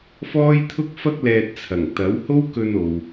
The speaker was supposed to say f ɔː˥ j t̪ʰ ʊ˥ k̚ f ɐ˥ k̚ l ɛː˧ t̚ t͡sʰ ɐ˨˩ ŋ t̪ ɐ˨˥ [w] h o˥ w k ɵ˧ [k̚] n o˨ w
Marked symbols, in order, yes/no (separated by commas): yes, no